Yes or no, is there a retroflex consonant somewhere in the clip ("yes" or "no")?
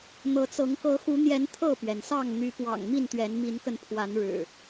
yes